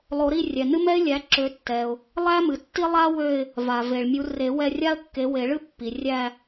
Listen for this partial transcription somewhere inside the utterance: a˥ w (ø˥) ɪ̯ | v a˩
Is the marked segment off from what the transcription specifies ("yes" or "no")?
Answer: yes